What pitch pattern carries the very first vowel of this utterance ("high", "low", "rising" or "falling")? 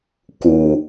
low